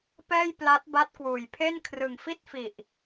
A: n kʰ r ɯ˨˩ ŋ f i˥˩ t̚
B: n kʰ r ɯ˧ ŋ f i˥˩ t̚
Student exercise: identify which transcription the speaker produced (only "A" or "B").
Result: A